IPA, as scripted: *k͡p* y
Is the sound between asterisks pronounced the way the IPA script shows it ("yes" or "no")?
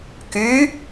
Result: no